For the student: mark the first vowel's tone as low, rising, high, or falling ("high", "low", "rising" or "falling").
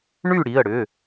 falling